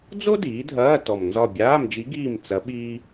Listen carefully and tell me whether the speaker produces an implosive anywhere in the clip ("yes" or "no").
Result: yes